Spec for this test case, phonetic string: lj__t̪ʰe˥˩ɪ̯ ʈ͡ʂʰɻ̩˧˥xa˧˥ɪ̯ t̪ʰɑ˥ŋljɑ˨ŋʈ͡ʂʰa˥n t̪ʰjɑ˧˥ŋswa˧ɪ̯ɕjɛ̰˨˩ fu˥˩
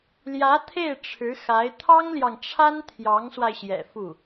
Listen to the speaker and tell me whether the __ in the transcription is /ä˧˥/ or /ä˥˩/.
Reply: ä˧˥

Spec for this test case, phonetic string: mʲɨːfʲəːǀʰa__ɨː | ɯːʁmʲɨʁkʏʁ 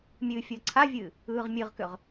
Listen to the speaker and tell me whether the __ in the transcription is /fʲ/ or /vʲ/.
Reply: vʲ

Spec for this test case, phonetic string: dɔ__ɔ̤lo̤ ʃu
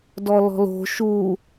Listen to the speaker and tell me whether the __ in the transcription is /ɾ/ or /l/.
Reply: l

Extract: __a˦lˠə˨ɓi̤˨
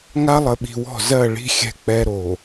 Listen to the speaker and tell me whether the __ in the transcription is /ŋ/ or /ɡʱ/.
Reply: ŋ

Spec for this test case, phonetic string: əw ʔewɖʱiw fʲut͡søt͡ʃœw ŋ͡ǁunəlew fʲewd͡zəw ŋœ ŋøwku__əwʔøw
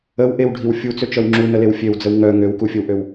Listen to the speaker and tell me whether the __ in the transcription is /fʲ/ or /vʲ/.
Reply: fʲ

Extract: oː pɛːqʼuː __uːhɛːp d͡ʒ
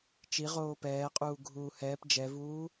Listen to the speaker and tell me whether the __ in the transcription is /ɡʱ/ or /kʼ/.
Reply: ɡʱ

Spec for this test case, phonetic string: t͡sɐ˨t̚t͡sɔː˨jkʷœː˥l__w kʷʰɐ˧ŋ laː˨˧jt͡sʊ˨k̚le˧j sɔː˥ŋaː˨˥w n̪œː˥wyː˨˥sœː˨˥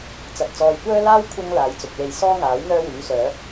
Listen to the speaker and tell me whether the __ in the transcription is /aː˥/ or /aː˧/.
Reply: aː˥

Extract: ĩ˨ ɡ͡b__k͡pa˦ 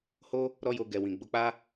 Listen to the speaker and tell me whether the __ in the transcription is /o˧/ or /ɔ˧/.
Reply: o˧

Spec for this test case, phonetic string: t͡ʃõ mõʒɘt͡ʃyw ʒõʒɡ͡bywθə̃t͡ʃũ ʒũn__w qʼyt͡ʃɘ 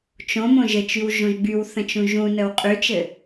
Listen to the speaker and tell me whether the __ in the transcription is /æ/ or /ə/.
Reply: ə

